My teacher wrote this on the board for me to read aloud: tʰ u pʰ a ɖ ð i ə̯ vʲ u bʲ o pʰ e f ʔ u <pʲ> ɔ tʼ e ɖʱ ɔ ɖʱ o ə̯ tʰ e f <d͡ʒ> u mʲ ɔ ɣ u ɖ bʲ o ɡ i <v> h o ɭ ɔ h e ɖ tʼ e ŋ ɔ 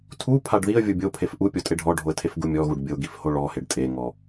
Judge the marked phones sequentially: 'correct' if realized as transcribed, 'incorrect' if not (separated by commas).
correct, incorrect, incorrect